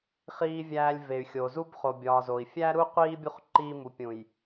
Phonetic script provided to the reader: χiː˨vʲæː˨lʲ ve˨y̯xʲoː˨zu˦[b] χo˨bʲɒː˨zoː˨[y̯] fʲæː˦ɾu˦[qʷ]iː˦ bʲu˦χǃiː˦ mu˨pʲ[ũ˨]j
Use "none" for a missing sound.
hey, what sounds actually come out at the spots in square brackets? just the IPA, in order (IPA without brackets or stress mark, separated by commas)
b, i̯, qʷ, ũ˨